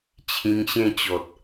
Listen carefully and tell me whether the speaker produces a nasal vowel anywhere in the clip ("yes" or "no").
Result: yes